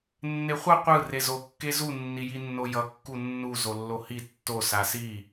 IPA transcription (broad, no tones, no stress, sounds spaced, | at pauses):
nː e χʷ ʌ qʷ ɯ r e z o kː e z u nː i j i nː o j ʌ kː u nː u z o lː o h i tː o s a s i